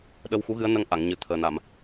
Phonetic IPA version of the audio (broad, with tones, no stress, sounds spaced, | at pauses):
ɗ ə˧ w x u˧˥ ɣ ɨ˧˥ ə̯ n ə˧ ŋ ʔ a˨˩˨ ŋ ɲ ɨ˨˩ t̪ʰ əː˨˩ n a˨˩˨ m